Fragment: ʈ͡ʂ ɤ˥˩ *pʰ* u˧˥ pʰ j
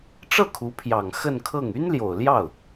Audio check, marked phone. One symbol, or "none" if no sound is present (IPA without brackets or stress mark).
kʰ